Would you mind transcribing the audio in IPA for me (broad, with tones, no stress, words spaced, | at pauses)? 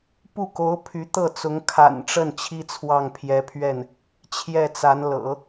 pu˥˩ko˧˥ʊ̯ pʰy˧˥t̪ɤ˥˩t͡sʊ˧˥ŋ kʰa̰˨˩nʈ͡ʂə˥˩n t͡ɕʰi˥t͡sʰwɑ˥˩ŋpʰjɛ˧˥pʰɥɛ˥˩n | t͡ɕʰjɛ˥˩t͡sa˧˥nlɤ̰˨˩˦